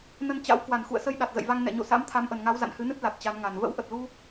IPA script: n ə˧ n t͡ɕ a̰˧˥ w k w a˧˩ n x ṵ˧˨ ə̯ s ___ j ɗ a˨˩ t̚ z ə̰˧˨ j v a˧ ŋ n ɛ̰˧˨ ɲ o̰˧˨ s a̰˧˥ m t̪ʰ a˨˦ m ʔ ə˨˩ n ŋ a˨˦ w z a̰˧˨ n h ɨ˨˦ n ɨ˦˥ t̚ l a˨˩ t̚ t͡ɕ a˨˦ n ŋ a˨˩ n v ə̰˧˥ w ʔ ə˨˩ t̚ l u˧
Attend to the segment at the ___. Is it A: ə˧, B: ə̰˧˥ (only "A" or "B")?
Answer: A